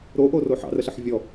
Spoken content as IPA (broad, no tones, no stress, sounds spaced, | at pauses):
ɾ o ʔ o r o ħ ɑ̰ r ə ɬ ə ħ vʲ ɔ